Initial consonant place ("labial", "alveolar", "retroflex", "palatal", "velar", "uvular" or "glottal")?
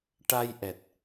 retroflex